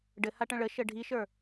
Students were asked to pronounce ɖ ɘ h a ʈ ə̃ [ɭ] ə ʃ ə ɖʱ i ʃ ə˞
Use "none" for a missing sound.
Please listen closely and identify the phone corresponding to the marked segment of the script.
ɭ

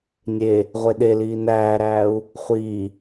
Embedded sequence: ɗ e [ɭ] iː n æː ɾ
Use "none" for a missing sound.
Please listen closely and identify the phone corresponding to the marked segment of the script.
l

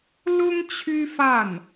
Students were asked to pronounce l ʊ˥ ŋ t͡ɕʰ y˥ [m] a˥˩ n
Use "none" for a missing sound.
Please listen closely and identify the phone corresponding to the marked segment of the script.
f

